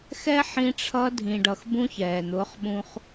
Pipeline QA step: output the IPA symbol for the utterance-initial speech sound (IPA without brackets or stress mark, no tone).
x